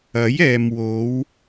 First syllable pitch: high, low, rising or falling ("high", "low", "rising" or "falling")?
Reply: rising